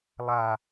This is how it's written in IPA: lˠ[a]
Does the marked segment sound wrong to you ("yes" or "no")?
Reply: no